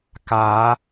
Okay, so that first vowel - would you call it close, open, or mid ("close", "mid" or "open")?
open